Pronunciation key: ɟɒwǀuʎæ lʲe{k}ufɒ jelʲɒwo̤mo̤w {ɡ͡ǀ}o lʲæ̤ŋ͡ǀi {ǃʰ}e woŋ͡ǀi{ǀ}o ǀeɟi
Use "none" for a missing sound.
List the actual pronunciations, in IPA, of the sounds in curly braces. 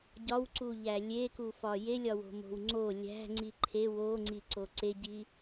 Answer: k, ŋ͡ǀ, ǃʰ, ǀ

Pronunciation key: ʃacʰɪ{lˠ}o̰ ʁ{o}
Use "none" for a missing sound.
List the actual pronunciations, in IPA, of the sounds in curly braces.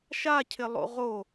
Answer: lˠ, o

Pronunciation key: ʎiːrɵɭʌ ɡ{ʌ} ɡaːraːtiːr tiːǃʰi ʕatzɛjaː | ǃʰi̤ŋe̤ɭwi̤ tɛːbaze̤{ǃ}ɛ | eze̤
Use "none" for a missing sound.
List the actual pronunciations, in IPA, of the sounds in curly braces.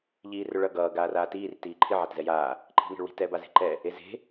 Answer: ʌː, ǃ

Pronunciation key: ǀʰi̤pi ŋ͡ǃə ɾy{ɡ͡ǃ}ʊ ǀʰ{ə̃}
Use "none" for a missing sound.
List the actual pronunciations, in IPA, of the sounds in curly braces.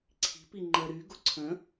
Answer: ɡ, ə̃

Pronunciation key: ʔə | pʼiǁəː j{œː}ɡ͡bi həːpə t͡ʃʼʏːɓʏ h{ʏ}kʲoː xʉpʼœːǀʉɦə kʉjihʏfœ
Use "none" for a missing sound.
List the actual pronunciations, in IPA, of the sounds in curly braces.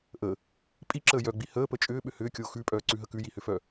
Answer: œ, ʏː

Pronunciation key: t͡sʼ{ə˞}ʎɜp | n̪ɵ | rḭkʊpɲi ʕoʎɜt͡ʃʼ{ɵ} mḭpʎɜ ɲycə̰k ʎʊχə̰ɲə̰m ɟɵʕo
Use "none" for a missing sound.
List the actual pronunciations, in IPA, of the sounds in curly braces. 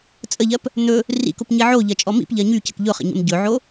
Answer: ə, ɔ

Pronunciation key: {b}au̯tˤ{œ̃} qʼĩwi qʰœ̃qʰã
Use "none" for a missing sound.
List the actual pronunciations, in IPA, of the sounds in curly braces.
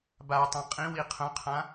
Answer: b, œ̃

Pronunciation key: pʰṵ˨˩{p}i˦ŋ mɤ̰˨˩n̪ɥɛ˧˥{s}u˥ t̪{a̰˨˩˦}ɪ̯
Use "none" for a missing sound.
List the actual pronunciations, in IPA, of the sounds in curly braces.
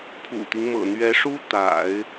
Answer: t̪, ʂ, a̰˨˩˦

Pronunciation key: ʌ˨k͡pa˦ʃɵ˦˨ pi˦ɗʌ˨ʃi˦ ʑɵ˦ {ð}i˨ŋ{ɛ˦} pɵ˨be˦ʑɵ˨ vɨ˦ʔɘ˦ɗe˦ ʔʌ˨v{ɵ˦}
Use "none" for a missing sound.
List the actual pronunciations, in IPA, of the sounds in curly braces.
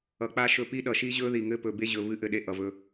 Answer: ð, ɘ˦, ɵ˦

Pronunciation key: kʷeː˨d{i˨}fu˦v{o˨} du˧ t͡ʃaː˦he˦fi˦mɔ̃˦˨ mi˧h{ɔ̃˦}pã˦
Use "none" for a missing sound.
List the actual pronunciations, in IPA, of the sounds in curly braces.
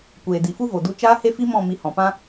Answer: i˨, o˨, ɔ̃˨

